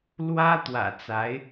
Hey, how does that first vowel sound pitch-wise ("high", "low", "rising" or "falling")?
high